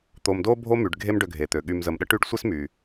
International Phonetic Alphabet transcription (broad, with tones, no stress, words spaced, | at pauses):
t̪o˨mdo˦ bʱo˦my˩ɖɡʱe˦m ɖø˨ɡʱe˩t̪ø˩ ɠy˨mzə˨mɗə˥ ʈy˦ɖsʷe˥smy˩